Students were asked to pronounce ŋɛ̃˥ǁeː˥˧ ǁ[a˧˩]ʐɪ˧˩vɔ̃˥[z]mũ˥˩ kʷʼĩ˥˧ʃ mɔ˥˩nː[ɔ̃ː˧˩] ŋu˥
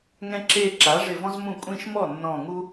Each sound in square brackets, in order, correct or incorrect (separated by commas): incorrect, correct, correct